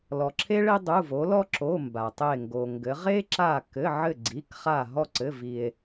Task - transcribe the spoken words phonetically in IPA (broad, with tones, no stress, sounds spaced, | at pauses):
l ɔ˩ ǁʰ e˦ ɭ e˦ dˤ u˩˧˩ v o˩˧ l ɔ˦ ǁ o˩˧˩ m b a˩ tˤ e˧˩ ŋ ɡ o˩ ŋ ɡ ɘ˩˧ ʁ e˦ ǁ a˧˩ k ɘ˩˧˩ ʕ ɘ˧˩ ɡ͡ǀ i˩˧˩ k χ a˧˩ ɦ ɔ˧˩ ǀ ɘ˩˧˩ v i˩ e̯